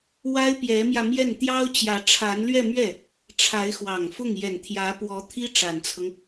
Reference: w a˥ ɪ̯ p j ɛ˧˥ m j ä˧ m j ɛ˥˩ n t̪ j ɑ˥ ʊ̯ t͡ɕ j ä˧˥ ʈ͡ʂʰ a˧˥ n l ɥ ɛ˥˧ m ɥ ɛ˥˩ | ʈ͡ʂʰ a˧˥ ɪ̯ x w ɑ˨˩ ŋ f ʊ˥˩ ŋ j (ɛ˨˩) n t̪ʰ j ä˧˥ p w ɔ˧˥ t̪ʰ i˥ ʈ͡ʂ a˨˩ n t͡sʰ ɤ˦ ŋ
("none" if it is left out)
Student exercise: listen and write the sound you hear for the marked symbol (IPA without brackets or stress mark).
ɛ˨˩